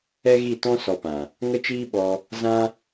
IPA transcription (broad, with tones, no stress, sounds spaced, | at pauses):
ɛ˦ ɣ i˦˨ t ɔ̃˦ s ɔ˧ p ã˨ | ŋ ə˦ t͡ʃ iː˦ ɓ ɔ˧ | z ã˦